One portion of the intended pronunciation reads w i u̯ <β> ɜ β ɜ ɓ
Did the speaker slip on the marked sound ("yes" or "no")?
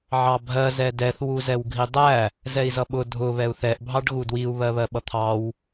no